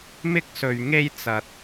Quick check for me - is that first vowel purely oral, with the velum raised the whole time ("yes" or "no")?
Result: yes